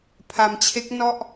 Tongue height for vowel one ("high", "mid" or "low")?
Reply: low